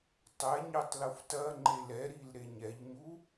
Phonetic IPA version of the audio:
tˤɛɲetˤ luftɐŋ͡ǃe lɛɾil ɾeɲɛʎɲu

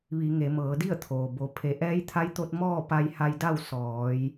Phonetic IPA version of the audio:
ʋi˩˧ŋe˩˧ mɤː˩˧di˥˨ə̯t̪ʰoː˩ bo˩ pʰe˩˧ ʔɛː˧˥jt̪ʰa˧˥jt̪o˧t̚ mɔː˥˨ pa˧jha˧jda˥˨w sɔː˩˧j

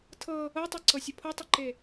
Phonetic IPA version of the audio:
tʰɤ | ɤtˤɤǀɤsʲə pʰɤtˤəǃe

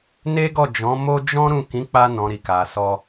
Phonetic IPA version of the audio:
ne˦ɡɔ˦˨d͡ʒɔ̃˨˦mo˦ d͡ʒɔ̃˦ ɾũ˦˨ kĩ˨˦k͡pa˧nɔ̃˨ ɾi˨ka˨sɔ˧

